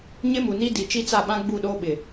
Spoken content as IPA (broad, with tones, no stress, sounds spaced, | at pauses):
ɲ ɪ˦ m u˨ n i˦ d i˨ t͡ʃ i˦ t͡s a˦˨ ɓ ã˦ ɡ͡b u˦˨ ɗ oː˦ ɓ ɪ˨